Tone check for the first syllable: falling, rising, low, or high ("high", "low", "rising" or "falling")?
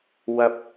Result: high